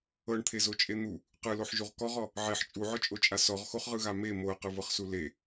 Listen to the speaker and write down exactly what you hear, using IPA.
ɤ ɳ t̪ʰ e z o t͡ʃʼ e n̪ u | q ɯ l o ħ ʒ u ʁ k ɔ ʁ ɔ | ʕ e ħ t͡ʃʼ u ʕ ɔ t͡ʃʼ o t͡ʃʼ a s ɔ ʁ x o χ ʁ ɯ ɣ a m e m o ə̯ q ɯ v ɤ χ s u l e

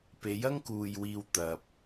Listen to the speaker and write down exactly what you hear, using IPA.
p e˨˥ j ɐ˥ ŋ k uː˨ j w iː˨ w t̪ ɐ˨ p̚

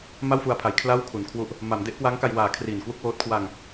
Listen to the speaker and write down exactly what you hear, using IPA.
m a˥˩ w f u˧ a̯ pʰ a˩˦ j kʰ l a˥˩ w kʰ u˩˦ n kʰ w u˦˥ ʔ | m a˩˦ m d e˦˥ ʔ k w aː˦˥ ŋ k a˧ j w aː˩˦ kʰ r iː˨˩ n k w u˥˩ k̚ w oː˦˥ t̚ kʰ w a˧ ŋ

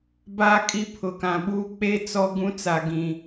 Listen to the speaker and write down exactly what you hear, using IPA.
b a˦˨ kʼ i˦ pʰ ʊ˨ k ã˨ ɓ uː˦ k͡p e˦ t͡s ɔ˦ ɡ ũ˦ t͡s a˨ ɡ ĩ˨

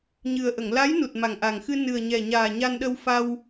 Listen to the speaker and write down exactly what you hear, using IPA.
ɲ ɨ˨˩ ə̯ ʔ ə˨˩˨ ŋ l a˧˥ j n u˨˩ t̚ m a˨˩ ŋ ʔ a˨˩ ŋ x ɨ˧ n ɨ˨˩ ə̯ ɲ ɛ˨˩ ɲ aː˨˩ ɲ a˧ n ɗ ə˧ w f a˧ w

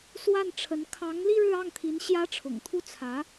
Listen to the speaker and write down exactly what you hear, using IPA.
s w a˥˩ n ʈ͡ʂʰ ə˧˥ n kʰ ɑ˧˥ ŋ l i˥˧ ɻ ɻ̩˥˧ ɑ˥˩ ŋ t̪ʰ i˧˥ n ɕ j ä˥ ʈ͡ʂʰ ʊ̰˨˩ ŋ t̪ʰ u˥˩ t͡sʰ ä˧˥

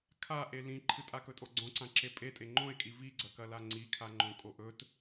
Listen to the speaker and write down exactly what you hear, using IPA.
kʰ a ʔ e l ĩ ǃʰ ɨ tʼ a k ɵ tʼ o ɡ͡ǀ õ ǀ ã ǁ e pʼ e tʼ e ŋ͡ǃ õ e̯ kʼ i v i ɡ͡ǀ ɐ k ɐ l a ŋ͡ǀ i kʰ a ŋ͡ǃ õ kʼ o ʔ ɵ t

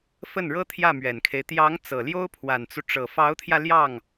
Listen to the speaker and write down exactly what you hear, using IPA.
f ə˥˩ n ɻ ɤ˥ t̪ʰ j ä˥˩ m ɥ ɛ˨˩ n kʰ e˦ ɪ̯ t̪ j ɑ˧˥ ŋ t͡s ɤ˨˩ l j o˥ ʊ̯ pʰ w a˨˩ n t͡s u˦ ʈ͡ʂ ɤ˨˩ f ɑ˧˥ ʊ̯ t̪ʰ j ä˧ l j ɑ˥˩ ŋ

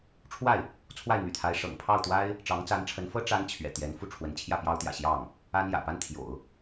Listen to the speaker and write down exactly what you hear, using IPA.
ʈ͡ʂʰ w a˥˩ ɪ̯ | t͡sʰ w a˥˩ ɪ̯ n̪ y̰˨˩ t̪ʰ a˧˥ ɪ̯ ʂ ɤ̰˨˩ ŋ pʰ ɑ˥˩ ʊ̯ t̪ w a˥ ɪ̯ | ʈ͡ʂ ɑ˧˥ ŋ t͡s a˧˥ n ʈ͡ʂʰ ə˧˥ n f ɤ˥ ʈ͡ʂ a˥ n t͡ɕʰ ɥ ɛ̰˨˩ t̪ j ɛ˧˥ n f u˥˩ ʈ͡ʂʰ w ə˧˥ n t͡ɕʰ j ä˥˩ p j ɑ˥ ʊ̯ t̪ j ä̰˨˩ ɕ j ɑ˥˩ ŋ | a˥ n j ä̰˨˩ p a˥ n t̪ʰ j o̰˨˩˦ ʊ̯

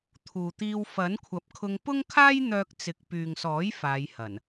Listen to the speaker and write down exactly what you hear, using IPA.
t̪ʰ uː˨ t̪ iː˧ w f ɐ˨˥ n kʷʰ ɐ˨˥ p̚ kʰ ʊ˧ ŋ p ʊ˥ ŋ kʰ aː˥ j n̪ œː˧ k̚ t͡s ɪ˨ k̚ p yː˨ ŋ s ɔː˨˥ j f aː˨˧ j h ɐ˨˩ n

